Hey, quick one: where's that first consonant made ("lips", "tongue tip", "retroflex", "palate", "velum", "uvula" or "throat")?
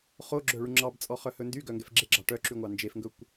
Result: uvula